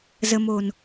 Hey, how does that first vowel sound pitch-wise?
low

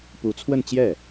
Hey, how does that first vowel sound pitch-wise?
rising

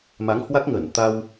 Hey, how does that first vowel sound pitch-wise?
rising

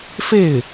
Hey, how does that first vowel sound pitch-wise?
falling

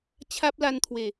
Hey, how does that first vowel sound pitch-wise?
high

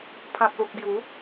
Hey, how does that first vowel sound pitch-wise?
low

